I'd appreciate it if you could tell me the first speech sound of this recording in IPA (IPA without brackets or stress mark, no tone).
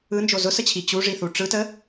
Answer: ɯ